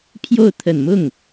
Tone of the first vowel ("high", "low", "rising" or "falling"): falling